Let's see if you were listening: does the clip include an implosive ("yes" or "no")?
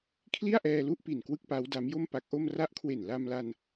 no